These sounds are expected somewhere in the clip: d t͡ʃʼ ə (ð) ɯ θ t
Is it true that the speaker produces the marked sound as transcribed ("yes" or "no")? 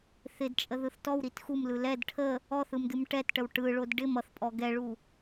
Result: yes